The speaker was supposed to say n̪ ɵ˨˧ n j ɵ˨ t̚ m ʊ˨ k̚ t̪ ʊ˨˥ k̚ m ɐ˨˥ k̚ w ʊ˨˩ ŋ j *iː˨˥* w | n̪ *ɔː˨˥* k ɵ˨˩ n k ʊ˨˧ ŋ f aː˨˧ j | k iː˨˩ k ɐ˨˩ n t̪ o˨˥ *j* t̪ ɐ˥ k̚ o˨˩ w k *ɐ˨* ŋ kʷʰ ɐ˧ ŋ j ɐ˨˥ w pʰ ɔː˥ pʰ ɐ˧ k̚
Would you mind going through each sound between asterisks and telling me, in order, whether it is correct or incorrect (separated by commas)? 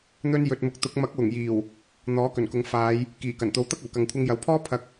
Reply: incorrect, correct, incorrect, correct